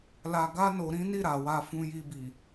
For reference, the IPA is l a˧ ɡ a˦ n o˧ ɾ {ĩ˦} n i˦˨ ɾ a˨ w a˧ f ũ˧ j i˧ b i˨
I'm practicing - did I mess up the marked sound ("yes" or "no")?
no